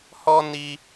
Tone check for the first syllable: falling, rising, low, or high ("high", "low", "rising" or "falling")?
high